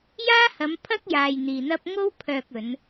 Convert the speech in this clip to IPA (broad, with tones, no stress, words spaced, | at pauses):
jaː˥hɐ˨˧m pʰɐ˥k̚jaː˨j n̪iː˨n̪ɐ˥p̚ ŋo˥w pʰœː˧k̚ɵ˨˧n